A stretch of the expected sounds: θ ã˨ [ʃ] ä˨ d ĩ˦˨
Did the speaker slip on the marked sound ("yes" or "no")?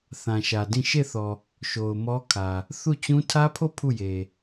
no